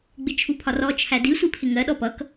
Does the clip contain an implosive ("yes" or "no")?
yes